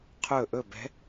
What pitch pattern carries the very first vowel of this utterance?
falling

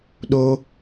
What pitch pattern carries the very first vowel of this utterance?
high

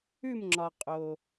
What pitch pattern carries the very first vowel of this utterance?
falling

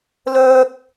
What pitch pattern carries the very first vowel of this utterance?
high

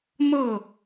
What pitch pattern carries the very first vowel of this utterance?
falling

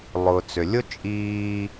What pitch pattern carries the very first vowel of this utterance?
low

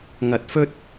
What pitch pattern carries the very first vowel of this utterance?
low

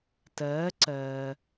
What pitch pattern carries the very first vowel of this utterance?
rising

